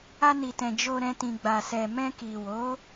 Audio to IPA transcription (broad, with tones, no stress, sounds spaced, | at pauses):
a˧ n i˨ t ɛ̃˨ d͡ʒ o˧ ɾ ɛ̃˧ t ĩ˨ ɡ͡b a˨ s ɛ˨ m ɛ̃˧ k i˨ w o˨˦